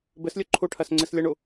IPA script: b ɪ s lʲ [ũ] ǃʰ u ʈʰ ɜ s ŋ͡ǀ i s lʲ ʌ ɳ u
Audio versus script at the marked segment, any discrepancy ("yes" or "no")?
yes